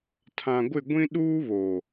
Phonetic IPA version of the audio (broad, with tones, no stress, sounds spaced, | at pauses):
tʰ ã˨ ɡʷ ɪ˦˨ ɡʷ ĩ˦ ɗ uː˦ β o˨